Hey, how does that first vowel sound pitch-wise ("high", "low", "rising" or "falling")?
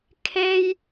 high